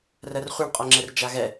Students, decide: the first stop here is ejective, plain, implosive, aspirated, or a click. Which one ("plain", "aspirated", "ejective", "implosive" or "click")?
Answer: ejective